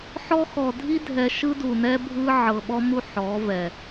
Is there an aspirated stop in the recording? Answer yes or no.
no